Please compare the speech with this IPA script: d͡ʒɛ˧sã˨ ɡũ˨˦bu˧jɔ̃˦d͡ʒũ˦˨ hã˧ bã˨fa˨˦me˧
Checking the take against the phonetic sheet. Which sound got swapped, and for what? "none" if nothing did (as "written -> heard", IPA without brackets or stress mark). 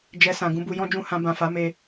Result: none